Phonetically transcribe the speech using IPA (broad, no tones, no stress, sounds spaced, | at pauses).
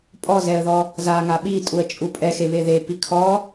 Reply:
pʼ ɔ z ɛ ə̯ ð ɔ | z a ŋ a ɓ i tʼ u ə̯ t͡ʃʼ u pʼ ɛ x e β e ð e p i kʰ ɔ